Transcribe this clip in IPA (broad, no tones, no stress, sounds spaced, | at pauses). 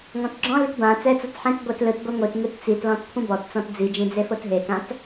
ŋ ɔ̃ t ɡ͡ǁ ɔ̃ l i t b ã t͡s ɛ t͡s o t ħ ẽ t ɡʷ ɛ t l ɯ t ɡʷ i ŋʷ i t ŋ ɯ t t͡s i t l ɔ̃ t kʷʰ ĩ b ɔ t t͡s ɔ̃ t d͡z i d͡ʒ ĩ d͡z e f o t ɦ e k ã t